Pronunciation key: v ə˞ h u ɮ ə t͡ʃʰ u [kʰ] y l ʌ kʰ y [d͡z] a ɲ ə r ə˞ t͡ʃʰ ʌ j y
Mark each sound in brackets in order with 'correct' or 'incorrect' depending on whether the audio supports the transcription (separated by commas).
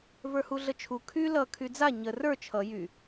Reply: correct, correct